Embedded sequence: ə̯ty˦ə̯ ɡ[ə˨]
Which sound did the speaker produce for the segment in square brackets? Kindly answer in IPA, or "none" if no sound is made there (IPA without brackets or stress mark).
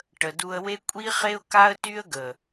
ə˨